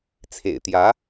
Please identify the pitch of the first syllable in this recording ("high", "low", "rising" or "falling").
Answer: low